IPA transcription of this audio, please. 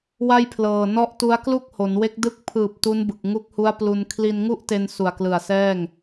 w a˥˩ j pʰ l ɤː˨˩ n ɔ˦˥ ʔ t u˦˥ a̯ k l u˥˩ k̚ h o˩˦ n w e˦˥ k̚ d ɯ˥˩ k̚ pʰ ɯː˨˩ p̚ t u˦˥ n b ɯ˨˩ k̚ ŋ u˦˥ k̚ h u˦˥ a̯ p l u˧ n kʰ l i˧ n ŋ u˥˩ ʔ t e˧ n s u˨˩ a̯ k l ɯ˨˩ a̯ s ɛː˥˩ ŋ

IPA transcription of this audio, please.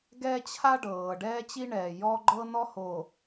ɡ ɛ˦ t͡ɕʰ a˦ ɖ ɤː˨ ɖ ɛː˦ t͡ɕ i˦ ɳ ɛː˨ j ɔ˦ ɡ͡ǃ ɤ˦ n ɔ˦ h o˨

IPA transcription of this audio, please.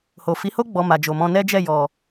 h o˨ f i˨˦ h o˦ ɡ͡b ɔ˧ m a˨ d͡ʒ o˨ m ɔ̃˧ n ɛ˦ d͡ʒ ɛ˦˨ j ɔ˨

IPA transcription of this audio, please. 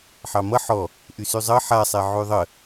ħ ɑ m ʌ ħ ɔ | ʔ y s y zˤ ʌ ħ a sˤ ɛ ʕ y ðˤ ə

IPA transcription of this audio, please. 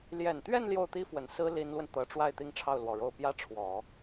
l j ɛ˨˩ n t̪ ɥ ɛ˥˧ n l j o˥˩ ʊ̯ t̪ i˥ f w ə˨˩ n s ɹ̩˥ l i˧˥ n l w ə˧ n t̪ ɤ˧˥ ʈ͡ʂ w a˥˧ ɪ̯ t̪ i˥˧ ŋ ʈ͡ʂʰ ɑ˥˩ ʊ̯ l w ɔ˨˩ ɻ o˥˩ ʊ̯ p j ä˥ ʈ͡ʂʰ w ɔ˨˩˦

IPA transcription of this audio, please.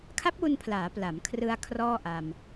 kʰ a˦˥ p̚ w u˧ n pʰ l aː˩˦ p l a˩˦ m kʰ r ɯ˧ a̯ kʰ r ɔː˥˩ ʔ a˧ m

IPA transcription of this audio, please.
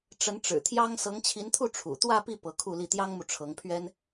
ʈ͡ʂ ə˧˥ n ʈ͡ʂ ɻ̩˨˩ t̪ʰ j ɑ˥ ŋ s ɤ˧˥ ŋ t͡ɕʰ i˧˥ n t̪ʰ u˥˩ ʈ͡ʂʰ ṵ˨˩ t̪ w ä˥˧ p i˥˩ p ɤ˧˥ kʰ u˥˧ l i˥˩ t̪ j ɑ˥ ŋ m u˨ ʈ͡ʂʰ ɤ˧˥ ŋ pʰ ɥ ɛ˥ n

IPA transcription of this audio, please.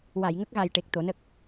w a˨˩˨ j ŋ ə˦˥ k̚ ɣ a˨˩ j ʈ e˨˩ k̚ t̪ o˨˩˦ n ə˦˥ k̚

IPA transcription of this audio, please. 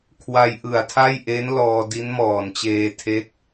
kʰ w a˧ j ʔ ɯ˨˩ a̯ tʰ a˥˩ j ʔ e˦˥ n l ɔː˧ d i˦˥ n m ɔː˨˩ n t͡ɕ eː˧ tʰ e˦˥ k̚

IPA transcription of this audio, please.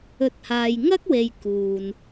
ɵ˨˥ t̚ h aː˨ j ŋ ɐ˥ k̚ w e˨ j k uː˨ n

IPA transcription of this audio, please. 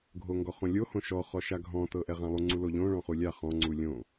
ɡʱ o ŋ ɡ ɔ χ õ lʲ o h õ ʃ ɔ χ ɔ ʃ a ɡʱ ɔ̃ t ɤ ʔ ɛ ʁ ã lˠ u ŋ͡ǀ u l o ʎ õ ɭ ɔ̃ χ u lʲ a χ ɔ̃ ŋ͡ǀ u lʲ õ

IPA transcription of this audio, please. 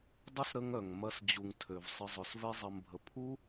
dˤ ə˦ s ɾ ə˦ ŋ œ˨ ŋ m ɐ˧ s d͡ʑ u˨ ŋ tʰ ø˨ v sˤ ə˧ zˤ œ˨ s v ɛ˦ zˤ ɐ˧ m bʱ ə˨ pʰ u˦

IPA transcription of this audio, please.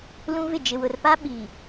l ũ˦ v ɪ˦˨ d͡ʒ ɪ˨ w ʊ˨ r p a˦ ɓ iː˨

